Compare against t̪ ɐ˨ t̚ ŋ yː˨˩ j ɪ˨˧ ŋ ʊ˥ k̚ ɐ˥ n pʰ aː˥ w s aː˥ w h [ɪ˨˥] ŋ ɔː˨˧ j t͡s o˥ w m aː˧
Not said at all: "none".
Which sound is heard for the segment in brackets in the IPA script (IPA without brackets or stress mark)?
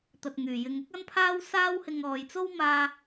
ɪ˧